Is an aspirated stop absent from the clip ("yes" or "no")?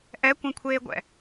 no